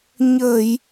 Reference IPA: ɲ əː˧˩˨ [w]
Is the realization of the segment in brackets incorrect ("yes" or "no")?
yes